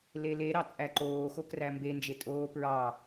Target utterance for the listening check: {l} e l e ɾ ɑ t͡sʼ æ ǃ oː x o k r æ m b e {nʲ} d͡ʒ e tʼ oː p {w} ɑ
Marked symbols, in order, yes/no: yes, no, no

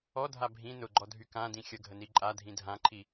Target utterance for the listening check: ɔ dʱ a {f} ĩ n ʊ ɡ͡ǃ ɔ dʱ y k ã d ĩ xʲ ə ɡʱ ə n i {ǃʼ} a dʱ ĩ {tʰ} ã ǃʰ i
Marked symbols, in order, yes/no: no, yes, no

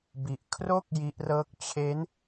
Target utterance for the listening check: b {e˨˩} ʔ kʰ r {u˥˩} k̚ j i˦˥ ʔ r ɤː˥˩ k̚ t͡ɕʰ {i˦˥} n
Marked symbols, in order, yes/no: no, no, no

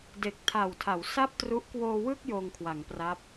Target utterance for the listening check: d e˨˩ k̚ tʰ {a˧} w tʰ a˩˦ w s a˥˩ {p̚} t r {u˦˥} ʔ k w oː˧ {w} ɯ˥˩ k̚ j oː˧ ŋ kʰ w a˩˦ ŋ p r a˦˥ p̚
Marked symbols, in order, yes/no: no, yes, yes, yes

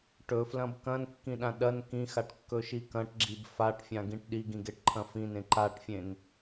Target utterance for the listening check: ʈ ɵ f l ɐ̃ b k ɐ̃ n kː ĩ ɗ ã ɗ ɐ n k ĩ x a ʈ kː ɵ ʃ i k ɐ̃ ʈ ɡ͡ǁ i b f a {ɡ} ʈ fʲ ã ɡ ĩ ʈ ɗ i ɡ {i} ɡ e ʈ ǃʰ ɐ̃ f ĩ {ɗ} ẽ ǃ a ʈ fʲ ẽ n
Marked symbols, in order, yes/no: no, no, no

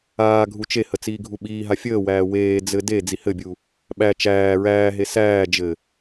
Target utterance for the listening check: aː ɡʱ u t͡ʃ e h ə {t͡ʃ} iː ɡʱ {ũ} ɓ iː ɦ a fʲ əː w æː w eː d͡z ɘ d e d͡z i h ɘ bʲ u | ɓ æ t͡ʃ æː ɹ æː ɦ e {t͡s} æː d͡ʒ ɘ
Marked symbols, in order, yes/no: no, no, no

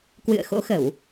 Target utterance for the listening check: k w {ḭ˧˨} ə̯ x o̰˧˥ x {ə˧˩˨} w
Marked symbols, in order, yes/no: no, yes

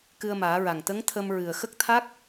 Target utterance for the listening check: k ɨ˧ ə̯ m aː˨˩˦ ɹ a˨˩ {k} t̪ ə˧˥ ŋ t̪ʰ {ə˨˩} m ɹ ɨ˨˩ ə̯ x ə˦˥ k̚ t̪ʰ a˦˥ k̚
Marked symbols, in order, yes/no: no, no

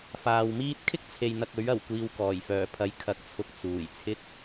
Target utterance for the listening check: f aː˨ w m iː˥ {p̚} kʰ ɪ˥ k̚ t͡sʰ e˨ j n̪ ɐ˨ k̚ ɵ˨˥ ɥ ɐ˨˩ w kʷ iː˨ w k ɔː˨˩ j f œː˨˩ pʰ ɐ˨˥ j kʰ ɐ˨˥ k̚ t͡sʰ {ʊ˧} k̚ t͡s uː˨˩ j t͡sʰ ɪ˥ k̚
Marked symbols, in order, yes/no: no, yes

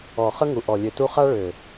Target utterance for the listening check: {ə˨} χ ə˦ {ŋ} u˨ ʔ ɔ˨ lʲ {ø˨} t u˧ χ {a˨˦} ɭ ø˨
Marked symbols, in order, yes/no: no, yes, yes, no

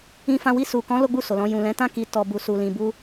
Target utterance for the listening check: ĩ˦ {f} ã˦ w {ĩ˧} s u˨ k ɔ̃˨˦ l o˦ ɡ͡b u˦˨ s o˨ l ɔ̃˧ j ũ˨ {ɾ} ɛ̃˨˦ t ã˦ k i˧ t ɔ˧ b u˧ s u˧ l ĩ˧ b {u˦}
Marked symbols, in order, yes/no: yes, no, no, yes

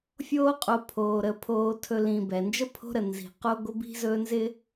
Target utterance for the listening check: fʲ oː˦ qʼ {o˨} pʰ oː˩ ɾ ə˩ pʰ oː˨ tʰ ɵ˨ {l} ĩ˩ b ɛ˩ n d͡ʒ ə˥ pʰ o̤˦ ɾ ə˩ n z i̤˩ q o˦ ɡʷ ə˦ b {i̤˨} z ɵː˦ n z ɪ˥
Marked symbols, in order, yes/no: yes, yes, no

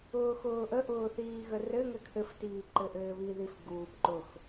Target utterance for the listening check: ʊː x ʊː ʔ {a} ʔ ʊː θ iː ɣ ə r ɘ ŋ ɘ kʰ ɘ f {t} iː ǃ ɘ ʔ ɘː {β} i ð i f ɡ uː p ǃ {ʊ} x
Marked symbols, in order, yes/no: no, yes, yes, yes

